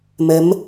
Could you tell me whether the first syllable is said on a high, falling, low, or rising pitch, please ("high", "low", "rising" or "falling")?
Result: rising